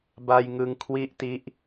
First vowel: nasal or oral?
oral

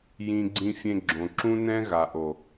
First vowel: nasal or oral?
nasal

